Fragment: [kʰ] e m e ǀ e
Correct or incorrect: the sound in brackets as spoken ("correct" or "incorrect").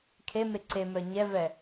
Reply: correct